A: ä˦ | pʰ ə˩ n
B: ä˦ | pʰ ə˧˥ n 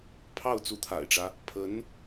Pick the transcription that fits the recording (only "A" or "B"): B